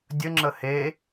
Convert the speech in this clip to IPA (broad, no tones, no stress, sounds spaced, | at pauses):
dʲ ə ŋ͡ǁ ə h e